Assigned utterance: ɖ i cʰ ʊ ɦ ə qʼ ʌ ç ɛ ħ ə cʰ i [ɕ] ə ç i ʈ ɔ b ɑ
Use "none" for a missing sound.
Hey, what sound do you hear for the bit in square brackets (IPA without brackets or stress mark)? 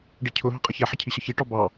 ɕ